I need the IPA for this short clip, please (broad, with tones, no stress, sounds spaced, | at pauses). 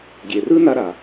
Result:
ɡʲ e˨ r ɯ˦ n a˧ ɾ a˨